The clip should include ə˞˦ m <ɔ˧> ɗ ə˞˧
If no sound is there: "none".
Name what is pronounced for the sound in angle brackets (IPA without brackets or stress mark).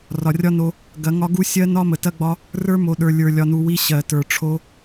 o˧